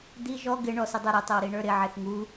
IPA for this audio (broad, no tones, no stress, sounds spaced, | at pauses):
d̪ i ʒ ɔ ɡ ɪ ɳ ɔ s ɪ dˤ ɛ ɾ ɪ tˤ ɪ w ɾ i ɳ ə˞ ɾ ɪ ʕ ɪ θ ŋ u